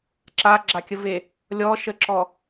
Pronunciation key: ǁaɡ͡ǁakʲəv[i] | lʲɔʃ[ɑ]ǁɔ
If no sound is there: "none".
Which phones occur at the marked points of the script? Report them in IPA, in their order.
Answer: e, ə

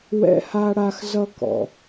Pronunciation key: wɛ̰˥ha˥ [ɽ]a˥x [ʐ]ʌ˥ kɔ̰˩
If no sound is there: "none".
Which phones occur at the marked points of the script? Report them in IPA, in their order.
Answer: ɽ, z

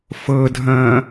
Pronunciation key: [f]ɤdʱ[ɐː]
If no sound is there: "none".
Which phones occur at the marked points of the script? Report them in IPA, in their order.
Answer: f, ɐ̃ː

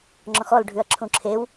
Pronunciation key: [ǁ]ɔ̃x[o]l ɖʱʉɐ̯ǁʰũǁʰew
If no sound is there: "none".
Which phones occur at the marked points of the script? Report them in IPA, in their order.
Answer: ŋ͡ǁ, ɔ

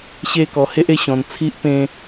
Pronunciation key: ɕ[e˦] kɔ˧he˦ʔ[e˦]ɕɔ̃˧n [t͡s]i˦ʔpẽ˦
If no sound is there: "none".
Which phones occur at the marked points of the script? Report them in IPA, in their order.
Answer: e˦, e˦, t͡sʰ

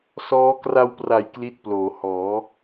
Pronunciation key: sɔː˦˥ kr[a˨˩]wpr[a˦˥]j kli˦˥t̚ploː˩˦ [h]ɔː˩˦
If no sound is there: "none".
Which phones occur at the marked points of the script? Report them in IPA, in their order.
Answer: a˧, a˨˩, h

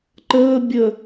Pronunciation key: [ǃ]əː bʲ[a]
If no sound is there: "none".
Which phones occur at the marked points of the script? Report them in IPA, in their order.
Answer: ǃ, ə

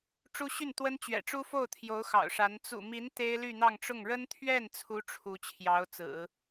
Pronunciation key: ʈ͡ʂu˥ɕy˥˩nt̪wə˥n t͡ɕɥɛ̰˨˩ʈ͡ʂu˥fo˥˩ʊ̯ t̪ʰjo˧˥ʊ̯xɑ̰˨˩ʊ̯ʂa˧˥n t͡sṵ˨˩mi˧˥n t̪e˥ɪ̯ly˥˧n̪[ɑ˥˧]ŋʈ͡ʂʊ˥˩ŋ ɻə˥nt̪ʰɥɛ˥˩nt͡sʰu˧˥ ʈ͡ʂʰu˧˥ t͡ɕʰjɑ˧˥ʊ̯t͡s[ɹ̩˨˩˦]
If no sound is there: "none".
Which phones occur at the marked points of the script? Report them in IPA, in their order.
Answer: ɑ˥˧, ɹ̩˨˩˦

